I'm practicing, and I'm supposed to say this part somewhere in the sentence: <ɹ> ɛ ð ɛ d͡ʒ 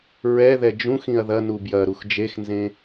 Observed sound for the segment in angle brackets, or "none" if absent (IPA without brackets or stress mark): ɹ